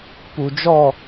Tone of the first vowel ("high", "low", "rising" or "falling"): low